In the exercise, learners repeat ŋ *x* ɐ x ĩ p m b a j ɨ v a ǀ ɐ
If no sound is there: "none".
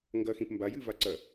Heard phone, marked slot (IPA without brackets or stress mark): ɡ